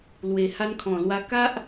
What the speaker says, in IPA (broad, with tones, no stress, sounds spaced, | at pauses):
l w e˨˩ h a˧ n kʰ ɔ̃˨˩ l w a˧ k a˦ ʔ